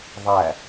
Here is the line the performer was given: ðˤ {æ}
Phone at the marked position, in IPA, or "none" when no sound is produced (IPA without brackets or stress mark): æ